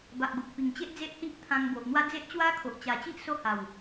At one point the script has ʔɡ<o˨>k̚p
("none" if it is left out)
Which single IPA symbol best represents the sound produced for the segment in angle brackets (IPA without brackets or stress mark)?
o˨